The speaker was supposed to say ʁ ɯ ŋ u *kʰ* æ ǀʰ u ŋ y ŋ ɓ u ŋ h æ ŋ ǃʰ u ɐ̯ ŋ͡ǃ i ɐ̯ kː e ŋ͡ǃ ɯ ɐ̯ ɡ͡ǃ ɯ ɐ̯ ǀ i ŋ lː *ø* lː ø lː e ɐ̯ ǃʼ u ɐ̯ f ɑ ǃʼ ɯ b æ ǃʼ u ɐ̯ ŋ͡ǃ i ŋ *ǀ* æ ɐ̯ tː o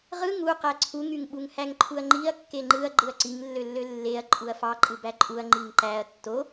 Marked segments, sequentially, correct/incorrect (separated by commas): incorrect, correct, incorrect